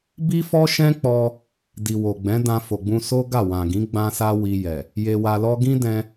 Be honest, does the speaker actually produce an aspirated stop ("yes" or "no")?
no